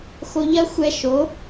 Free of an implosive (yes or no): yes